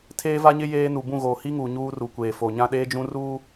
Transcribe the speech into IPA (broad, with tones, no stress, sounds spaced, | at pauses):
tʰ eː˦ v a˦ ɲ ɪ˦ j eː˦ n u˨ b ũ˦˨ ɣ oː˨ h i˦ ŋ uː˨ ɲ uː˦ r u˨ kʷ eː˨ f o˨ ɲ ã˦ ɗ eː˦ d͡ʒ ũ˦ r uː˦